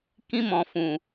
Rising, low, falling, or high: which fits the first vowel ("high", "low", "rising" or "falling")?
high